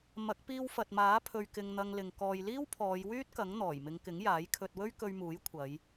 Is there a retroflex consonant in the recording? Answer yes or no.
no